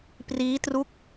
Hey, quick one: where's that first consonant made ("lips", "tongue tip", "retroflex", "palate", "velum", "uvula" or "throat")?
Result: lips